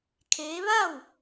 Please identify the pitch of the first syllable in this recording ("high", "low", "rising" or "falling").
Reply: rising